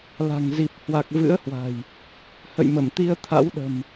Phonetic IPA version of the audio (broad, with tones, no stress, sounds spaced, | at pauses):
l a̤˨˩ ŋ z i˨˩ p̚ h w a˨˩ k̚ v ɨ̰˧˥ ə̯ h w a̤˨˩ j | h ə̰˧˨ j m ə˧˩ m t̪ i˧ ə̯ t̪ʰ a̰˧˥ w ɗ ə̤˨˩ m